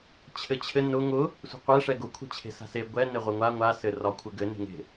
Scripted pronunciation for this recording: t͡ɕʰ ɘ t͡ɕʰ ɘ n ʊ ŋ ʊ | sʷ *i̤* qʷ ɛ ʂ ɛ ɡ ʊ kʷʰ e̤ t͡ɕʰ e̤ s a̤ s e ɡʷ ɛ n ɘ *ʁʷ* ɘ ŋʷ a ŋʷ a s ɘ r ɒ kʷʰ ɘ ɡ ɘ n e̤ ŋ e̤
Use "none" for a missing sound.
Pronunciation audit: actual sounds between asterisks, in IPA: e̤, ʁʷ

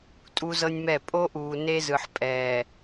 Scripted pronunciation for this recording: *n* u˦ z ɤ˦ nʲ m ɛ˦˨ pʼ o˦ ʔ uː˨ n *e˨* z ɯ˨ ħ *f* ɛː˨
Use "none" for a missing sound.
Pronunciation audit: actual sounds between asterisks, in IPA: tʼ, e˦, pʼ

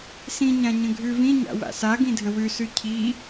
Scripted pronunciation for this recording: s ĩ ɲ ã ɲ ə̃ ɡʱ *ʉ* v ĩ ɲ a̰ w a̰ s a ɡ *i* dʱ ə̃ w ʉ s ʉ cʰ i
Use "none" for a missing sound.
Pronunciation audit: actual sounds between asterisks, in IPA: ʉ, ĩ

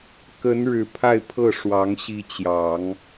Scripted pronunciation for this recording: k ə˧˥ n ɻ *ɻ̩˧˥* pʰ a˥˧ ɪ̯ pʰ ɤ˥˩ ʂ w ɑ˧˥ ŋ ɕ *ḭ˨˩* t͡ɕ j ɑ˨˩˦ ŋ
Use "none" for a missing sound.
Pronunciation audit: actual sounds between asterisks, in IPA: ɻ̩˨˩, i˧˥

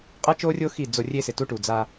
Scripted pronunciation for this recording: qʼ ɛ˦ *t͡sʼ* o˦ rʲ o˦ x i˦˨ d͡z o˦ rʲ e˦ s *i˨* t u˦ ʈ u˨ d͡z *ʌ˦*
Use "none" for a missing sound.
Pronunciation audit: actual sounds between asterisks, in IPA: t͡ʃ, ɪ˨, a˦

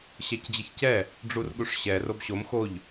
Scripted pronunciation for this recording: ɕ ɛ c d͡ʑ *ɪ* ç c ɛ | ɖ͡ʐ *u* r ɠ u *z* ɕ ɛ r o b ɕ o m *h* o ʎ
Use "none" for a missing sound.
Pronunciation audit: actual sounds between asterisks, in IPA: ɪ, u, ʂ, x

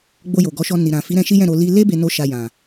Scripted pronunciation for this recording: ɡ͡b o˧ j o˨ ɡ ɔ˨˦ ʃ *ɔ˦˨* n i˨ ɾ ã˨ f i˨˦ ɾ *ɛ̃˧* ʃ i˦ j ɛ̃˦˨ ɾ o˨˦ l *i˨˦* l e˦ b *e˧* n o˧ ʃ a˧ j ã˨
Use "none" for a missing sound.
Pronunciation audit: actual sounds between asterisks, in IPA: ɔ˧, ɛ̃˧, i˦, e˧

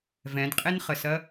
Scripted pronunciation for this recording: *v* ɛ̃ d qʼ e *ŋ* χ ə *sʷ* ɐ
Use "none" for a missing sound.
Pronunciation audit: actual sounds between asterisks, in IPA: v, n, s

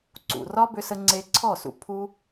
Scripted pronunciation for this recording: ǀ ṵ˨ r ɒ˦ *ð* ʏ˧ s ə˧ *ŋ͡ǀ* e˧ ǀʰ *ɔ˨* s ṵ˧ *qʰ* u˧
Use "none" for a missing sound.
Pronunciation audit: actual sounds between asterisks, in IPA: b, ŋ͡ǀ, ɔ˦˨, pʰ

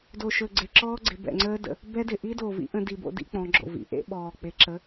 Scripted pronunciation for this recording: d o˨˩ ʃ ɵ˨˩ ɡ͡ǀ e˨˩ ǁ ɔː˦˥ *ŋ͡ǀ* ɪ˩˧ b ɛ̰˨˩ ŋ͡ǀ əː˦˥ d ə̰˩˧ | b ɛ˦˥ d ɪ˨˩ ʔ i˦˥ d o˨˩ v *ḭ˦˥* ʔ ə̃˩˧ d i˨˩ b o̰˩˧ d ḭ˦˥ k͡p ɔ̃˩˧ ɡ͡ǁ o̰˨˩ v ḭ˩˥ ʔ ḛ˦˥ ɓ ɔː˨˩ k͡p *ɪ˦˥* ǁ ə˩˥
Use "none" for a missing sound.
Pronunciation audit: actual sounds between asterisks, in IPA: ɡ͡ǀ, ḭ˦˥, ɪ˩˥

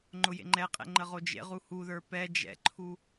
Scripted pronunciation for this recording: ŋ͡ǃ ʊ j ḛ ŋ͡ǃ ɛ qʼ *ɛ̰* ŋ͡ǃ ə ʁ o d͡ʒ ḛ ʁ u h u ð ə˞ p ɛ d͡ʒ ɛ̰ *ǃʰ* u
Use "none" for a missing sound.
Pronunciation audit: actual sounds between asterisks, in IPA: ɛ̰, ǃʰ

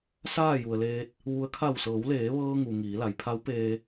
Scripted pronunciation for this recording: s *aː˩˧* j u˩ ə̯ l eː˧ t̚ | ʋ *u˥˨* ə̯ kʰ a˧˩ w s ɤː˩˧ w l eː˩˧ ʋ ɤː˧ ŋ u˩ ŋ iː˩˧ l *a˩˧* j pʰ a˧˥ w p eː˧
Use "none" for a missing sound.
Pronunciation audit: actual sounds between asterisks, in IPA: aː˥˨, u˧˥, a˩

